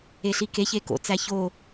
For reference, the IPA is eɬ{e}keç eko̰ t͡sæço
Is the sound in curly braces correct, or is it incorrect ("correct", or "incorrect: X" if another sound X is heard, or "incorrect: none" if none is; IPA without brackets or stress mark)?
incorrect: i